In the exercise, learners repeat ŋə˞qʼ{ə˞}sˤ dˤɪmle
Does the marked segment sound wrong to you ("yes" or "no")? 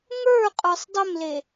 no